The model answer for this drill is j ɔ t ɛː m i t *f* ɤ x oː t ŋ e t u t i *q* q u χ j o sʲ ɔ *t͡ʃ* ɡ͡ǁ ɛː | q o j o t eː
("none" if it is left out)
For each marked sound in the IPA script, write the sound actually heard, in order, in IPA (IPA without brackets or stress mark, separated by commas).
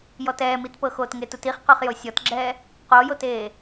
p, χ, t